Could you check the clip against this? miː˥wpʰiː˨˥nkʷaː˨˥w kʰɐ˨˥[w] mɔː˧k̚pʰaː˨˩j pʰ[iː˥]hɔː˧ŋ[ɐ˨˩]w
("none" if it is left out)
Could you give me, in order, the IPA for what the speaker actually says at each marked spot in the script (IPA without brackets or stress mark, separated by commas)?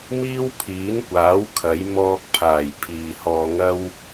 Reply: j, iː˨, ɐ˥